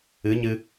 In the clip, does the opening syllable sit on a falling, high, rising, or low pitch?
rising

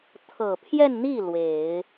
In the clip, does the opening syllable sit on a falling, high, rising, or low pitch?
low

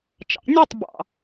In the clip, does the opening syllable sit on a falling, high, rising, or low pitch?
rising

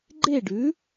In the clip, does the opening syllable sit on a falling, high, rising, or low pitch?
falling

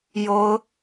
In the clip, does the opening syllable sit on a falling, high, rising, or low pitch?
high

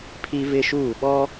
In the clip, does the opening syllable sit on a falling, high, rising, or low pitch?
high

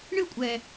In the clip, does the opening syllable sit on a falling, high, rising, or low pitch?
falling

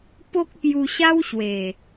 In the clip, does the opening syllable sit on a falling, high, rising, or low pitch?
high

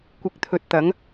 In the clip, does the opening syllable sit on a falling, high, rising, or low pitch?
rising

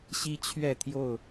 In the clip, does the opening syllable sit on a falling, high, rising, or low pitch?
high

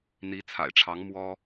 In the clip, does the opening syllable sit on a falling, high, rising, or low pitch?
rising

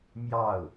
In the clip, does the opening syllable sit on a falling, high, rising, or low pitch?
falling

